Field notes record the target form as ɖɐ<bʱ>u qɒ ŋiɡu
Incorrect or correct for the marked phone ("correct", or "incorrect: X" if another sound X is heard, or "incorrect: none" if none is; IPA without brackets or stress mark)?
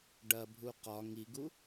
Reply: correct